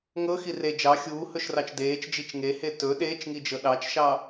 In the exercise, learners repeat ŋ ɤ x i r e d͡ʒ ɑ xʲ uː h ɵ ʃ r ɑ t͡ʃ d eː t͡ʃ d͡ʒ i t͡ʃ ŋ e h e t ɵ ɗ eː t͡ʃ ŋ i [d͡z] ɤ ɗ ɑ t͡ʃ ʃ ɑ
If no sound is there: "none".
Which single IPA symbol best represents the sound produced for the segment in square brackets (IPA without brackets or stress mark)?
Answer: d͡ʒ